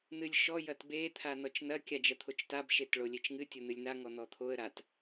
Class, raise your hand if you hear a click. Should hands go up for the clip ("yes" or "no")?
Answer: no